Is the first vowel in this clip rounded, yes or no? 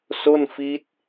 yes